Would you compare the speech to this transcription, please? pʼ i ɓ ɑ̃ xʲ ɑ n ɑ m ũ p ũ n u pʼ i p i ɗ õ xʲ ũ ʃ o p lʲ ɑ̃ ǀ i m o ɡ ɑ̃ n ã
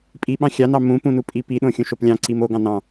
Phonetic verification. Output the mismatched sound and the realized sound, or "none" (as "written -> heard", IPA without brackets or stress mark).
ã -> ɑ̃